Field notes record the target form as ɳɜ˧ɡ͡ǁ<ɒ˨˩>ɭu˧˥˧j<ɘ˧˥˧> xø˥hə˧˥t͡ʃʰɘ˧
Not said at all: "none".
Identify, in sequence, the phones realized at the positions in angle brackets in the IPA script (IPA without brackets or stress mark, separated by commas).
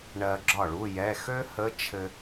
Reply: ɒ˥˩, ɛ˧˥˧